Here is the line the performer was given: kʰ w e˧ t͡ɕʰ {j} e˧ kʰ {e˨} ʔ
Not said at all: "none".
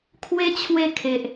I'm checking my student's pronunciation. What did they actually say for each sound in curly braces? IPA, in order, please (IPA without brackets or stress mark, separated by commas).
w, e˨